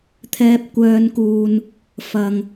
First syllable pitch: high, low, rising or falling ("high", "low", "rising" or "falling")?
high